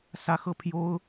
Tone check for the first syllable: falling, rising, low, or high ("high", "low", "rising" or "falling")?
high